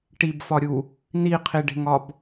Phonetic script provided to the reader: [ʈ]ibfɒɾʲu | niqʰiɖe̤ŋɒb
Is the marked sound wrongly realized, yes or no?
no